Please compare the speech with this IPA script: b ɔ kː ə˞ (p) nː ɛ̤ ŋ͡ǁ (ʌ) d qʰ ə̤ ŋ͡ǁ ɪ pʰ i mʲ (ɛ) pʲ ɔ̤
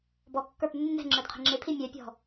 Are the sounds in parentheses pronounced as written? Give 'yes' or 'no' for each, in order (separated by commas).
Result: yes, no, yes